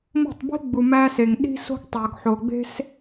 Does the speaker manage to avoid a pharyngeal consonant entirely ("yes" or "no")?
no